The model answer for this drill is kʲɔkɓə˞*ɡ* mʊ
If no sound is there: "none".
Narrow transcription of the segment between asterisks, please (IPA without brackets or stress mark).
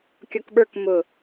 k